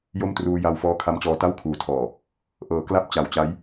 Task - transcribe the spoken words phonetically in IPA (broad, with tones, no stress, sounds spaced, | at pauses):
j o˥˩ m t r uː˧ j a˧ w f ɔː˦˥ kʰ a˦˥ m t͡ɕ ɔː˧ t a˥˩ w kʰ uː˨˩ tʰ ɔː˨˩ | ʔ ɤː˩˦ k l a˦˥ p̚ t͡ɕ a˨˩ w t͡ɕ a˦˥ j